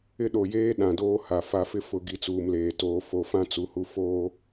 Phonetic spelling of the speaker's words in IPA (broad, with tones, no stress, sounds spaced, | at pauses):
ɪ˦ ɗ o˨ j eː˦ ɗ ã˨ d oː˦ h a˨ f a˨ f ɪ˦ f ʊ˨ ɡ i˨ t͡s uː˨ m l eː˨ t oː˨ f o˨ f ã˦ t͡s u˨ h u˨ f oː˦